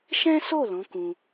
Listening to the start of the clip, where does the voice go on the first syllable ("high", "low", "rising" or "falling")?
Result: high